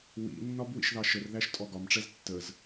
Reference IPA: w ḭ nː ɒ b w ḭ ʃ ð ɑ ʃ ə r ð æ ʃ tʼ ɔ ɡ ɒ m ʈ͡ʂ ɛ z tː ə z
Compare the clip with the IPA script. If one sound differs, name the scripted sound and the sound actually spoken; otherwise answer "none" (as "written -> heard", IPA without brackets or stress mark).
none